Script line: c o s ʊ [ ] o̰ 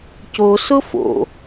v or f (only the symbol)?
f